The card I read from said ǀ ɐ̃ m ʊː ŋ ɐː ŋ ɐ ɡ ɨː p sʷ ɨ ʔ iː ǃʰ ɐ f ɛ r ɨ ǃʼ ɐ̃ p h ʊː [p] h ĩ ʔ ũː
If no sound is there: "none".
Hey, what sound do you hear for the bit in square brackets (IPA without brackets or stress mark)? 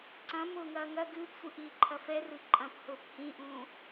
p